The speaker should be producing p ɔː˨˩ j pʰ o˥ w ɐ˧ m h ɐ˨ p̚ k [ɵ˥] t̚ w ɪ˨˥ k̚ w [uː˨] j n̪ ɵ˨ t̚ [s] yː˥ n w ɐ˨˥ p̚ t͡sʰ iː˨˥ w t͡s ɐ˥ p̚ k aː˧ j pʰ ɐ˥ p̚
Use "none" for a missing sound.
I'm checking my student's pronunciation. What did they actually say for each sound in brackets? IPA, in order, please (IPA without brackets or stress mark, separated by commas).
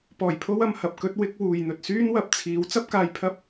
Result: ɵ˥, uː˨, s